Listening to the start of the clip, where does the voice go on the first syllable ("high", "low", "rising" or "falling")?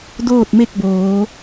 falling